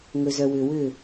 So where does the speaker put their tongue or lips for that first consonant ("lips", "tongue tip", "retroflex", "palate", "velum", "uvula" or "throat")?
velum